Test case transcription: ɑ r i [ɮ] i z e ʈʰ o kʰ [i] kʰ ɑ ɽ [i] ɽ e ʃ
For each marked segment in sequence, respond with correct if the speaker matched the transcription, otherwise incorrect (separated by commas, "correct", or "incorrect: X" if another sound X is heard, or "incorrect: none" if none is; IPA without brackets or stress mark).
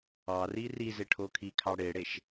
incorrect: r, correct, incorrect: e